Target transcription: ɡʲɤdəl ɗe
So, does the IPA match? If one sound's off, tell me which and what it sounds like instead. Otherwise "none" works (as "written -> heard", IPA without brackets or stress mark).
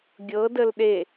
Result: none